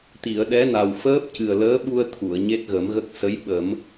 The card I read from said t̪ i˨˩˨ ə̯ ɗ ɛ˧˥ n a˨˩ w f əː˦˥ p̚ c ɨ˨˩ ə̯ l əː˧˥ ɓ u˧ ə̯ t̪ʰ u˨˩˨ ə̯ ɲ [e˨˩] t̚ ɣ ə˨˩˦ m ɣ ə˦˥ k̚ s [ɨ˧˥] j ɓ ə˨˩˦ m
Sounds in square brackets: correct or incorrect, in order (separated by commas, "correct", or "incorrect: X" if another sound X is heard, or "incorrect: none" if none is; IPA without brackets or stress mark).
incorrect: e˦˥, incorrect: ə˧˥